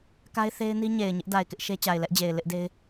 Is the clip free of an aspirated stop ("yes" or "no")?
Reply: yes